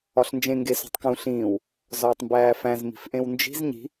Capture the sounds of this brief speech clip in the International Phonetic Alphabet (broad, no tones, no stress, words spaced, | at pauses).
ɒɬnd͡ʒẽ ŋɡeso̤tˤkũ ɬĩːw | zɒːtˤmbæːfæ̃z mi̤fʔẽwnd͡ʒi̤z ɲi̤